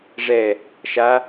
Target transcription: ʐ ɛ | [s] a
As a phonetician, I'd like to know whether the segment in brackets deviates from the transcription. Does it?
yes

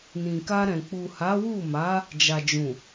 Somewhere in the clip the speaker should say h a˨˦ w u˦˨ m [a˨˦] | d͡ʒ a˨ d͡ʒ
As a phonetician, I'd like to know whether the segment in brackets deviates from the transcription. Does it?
no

